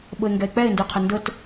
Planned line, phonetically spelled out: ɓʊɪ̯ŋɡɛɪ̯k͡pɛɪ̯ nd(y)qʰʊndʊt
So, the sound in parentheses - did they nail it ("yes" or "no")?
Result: yes